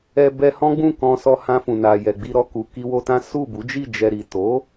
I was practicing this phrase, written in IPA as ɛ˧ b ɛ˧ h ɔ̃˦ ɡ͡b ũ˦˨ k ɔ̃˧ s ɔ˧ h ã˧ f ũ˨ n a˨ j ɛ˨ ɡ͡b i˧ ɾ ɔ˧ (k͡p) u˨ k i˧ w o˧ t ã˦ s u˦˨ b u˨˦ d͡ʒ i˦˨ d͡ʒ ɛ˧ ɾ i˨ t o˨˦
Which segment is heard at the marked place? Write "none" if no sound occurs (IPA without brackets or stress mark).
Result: k